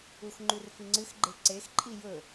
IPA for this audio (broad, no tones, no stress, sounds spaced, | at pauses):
u x ŋ͡ǃ ʉ r f i ŋ͡ǀ ɨ x ɡ͡ǃ e ǀ e x ǃʼ i j ɵ